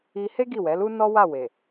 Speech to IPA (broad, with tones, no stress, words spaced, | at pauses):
i˧ he˦ ɡi˦˨wɛ˨˦lu˦ nɔ˦wa˦˨we˨